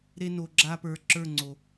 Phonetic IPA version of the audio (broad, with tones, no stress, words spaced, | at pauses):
ɾe˦no˧ ɡ͡ǁa˦pə˞˧ ǁə˞˦˨ŋ͡ǀo˨